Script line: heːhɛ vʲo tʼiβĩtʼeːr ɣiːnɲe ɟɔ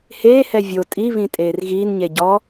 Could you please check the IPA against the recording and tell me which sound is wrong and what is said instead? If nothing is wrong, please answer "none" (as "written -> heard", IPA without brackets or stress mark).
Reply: none